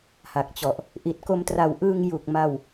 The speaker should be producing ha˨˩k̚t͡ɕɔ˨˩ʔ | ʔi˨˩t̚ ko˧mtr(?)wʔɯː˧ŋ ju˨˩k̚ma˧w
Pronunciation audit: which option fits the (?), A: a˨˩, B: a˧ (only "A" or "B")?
A